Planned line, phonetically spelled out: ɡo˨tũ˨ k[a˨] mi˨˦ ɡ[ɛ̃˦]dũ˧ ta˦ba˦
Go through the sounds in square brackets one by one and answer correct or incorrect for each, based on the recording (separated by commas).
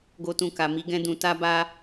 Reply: correct, correct